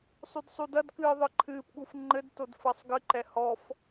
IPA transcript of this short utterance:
sˤ u d sˤ u d ɐ d k ɨː ðˤ ɨ ǃʰ ɨː p ɠ u f ŋ͡ǃ ɘ d t o d f ɐ sˤ ɡ ɨ ǃ ɛ h ɔ f

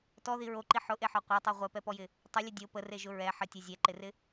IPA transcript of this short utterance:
t ɔ ð i ɹ o ǃ i ħ ʊ ʔ e ħ ɔ qʷ œ tˤ ɛ ʁʷ ɛ p ɛ p ɔ j ɪ | tˤ ə lʲ ə dʲ o p ə r e ʒ ʊ ɹ ɛ ħ ə tʲ e zʲ ɛ ǃ ɪ r ɪ

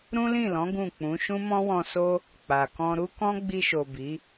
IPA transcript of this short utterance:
ɾ ũ˦ l ĩ˦˨ l ɔ̃˨˦ ɡ ũ˦˨ k͡p ũ˨˦ ʃ ũ˦ m ɔ̃˦ w ɔ̃˧ s o˦ | k͡p a˨ k ɔ̃˧ ɾ u˦ k ɔ̃˦ ɡ͡b i˧ ʃ o˨ b i˨˦

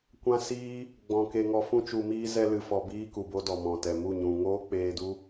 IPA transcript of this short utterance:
kʷ ã˦ s iː˦ | ɡ͡b ɔ̃˨ k e˧ ŋ ɔ˧ f ũ˧ t͡ʃ u˨ m iː˧ z ɛ˧ l ɨ˨ f ɔ˨ b iː˦ k u˨ b o˦ d ɔ˨ m ɔ̃˨ t ɛ˨ m u˦˨ ɲ ũ˨ ŋ oː˦ k͡p eː˧ d u˦

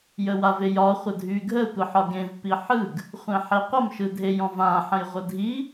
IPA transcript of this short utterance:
j ə w a v e j ɒ χʷ ə dʱ y ɡʱ ə tʷ ə ħ ɒ ɡ ẽ v p i ħ ɯ ɡ | χʷ ẽ ħ e qʷ ə m ʃ ɯ dʱ e j ɔ̃ v ã ħ ə̃ j ʁʷ ə dʱ i

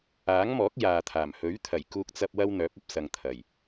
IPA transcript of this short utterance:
aː˨˥ ŋ m ɔː˨˥ k̚ j aː˨ t̪ʰ aː˨˩ m h ɵ˨˥ ɥ t̪ʰ ɐ˨˩ j k uː˧ k̚ t͡s ɐ˧ p̚ w ɐ˥ w n̪ œː˨˥ p̚ ɐ˧ p̚ s ɐ˨ ŋ t̪ʰ ɐ˨˩ j

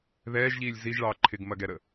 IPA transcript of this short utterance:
ð ɛː ʒ ʎ iː lʲ z i ʒ ɭ ɑː ǃʰ ɪ ɡ m ɐ ɡ ɛ ɾ ə

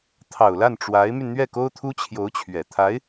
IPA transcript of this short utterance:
t̪ʰ ɑ˨˩ ʊ̯ l a˥˩ n ʈ͡ʂ w a˧˥ ɪ̯ m y˧ n n̪ ɥ ɛ˥˩ k o˥ ʊ̯ t̪ʰ u˥ t͡ɕʰ j o˧˥ ʊ̯ t͡ɕʰ ɥ ɛ˨˩ t̪ʰ a˧˥ ɪ̯

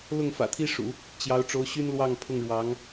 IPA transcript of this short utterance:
l ʊ˥˩ ŋ f ä̰˨˩ t̪ʰ i˥ ʂ ṵ˨˩˦ | t͡ɕ j ɑ˧˥ ʊ̯ ʈ͡ʂ o˧˥ ʊ̯ ɕ y˥ n l w ɑ˥˧ ŋ pʰ ʊ˥˩ ŋ ɻ w ɑ˧˥ ŋ

